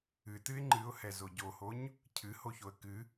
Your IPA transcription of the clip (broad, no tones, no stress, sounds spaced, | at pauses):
ɨ t ɨ ɪ̯ ŋ͡ǃ ɨ ʊ̯ h ɛ z o ɟ o h o ɲ | cʰ ɨ h o ç o ə̯ k ɨ